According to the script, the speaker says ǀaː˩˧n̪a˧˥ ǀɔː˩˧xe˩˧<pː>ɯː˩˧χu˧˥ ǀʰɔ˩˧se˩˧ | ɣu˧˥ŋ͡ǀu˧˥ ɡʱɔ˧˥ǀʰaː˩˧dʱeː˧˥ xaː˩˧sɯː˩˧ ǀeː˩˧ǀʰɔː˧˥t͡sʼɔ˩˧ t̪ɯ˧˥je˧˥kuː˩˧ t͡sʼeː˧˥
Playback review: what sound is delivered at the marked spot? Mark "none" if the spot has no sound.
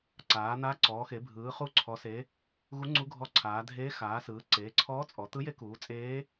bʱ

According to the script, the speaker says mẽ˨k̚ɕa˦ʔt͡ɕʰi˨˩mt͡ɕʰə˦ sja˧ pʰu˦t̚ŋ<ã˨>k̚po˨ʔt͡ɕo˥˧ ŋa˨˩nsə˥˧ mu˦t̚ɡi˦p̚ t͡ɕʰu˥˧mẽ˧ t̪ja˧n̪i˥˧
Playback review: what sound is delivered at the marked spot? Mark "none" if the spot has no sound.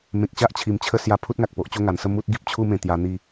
a˨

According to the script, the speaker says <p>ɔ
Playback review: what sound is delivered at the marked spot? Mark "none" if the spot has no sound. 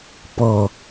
p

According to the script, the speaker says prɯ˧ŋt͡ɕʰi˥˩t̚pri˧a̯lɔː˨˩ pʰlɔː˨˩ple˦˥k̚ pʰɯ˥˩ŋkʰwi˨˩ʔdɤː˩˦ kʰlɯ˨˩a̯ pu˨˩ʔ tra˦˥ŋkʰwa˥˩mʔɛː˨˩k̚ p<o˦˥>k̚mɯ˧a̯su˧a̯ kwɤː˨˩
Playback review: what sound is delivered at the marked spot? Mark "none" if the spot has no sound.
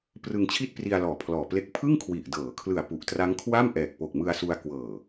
o˨˩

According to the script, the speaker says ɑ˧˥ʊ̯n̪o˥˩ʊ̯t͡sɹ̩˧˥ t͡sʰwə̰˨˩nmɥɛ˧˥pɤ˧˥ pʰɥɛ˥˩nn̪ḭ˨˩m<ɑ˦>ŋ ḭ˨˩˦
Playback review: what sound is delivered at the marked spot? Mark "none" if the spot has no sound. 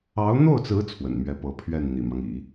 ɑ˦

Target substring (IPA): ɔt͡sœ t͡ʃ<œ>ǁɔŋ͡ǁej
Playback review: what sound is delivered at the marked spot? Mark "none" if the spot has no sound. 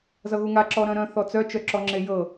œ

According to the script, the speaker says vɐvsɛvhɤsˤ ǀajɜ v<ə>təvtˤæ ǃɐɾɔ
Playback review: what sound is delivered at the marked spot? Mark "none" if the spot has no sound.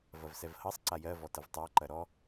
ɔ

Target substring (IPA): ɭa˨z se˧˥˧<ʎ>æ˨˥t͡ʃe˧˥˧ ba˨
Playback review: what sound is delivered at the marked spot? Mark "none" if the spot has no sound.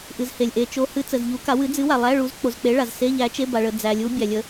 ʎ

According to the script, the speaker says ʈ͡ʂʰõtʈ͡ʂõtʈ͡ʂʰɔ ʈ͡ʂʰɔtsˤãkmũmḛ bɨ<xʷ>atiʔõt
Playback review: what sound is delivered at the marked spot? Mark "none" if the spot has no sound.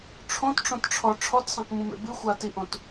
xʷ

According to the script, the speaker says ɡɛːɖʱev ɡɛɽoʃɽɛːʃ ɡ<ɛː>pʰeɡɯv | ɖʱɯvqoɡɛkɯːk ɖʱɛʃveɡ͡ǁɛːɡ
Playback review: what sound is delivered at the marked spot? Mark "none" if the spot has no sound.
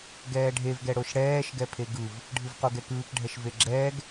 ɛ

